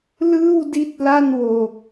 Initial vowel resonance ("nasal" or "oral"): oral